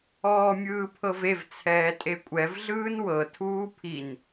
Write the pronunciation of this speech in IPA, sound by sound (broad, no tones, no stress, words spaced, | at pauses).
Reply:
ɔːmʲɯːpʰɤvev t͡sʰɛːtʼekʷʼɛv ɮɯːnwɤ tʰuːpʰin